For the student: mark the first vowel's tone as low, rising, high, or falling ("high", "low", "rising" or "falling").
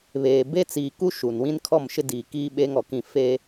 low